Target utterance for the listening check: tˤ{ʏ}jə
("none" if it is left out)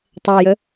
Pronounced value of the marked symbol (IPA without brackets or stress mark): ɛ